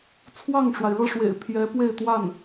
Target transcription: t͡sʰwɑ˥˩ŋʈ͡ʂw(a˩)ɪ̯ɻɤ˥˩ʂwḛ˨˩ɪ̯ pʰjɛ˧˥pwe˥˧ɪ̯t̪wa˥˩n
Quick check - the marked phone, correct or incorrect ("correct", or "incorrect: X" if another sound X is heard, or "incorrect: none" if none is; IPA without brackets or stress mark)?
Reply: correct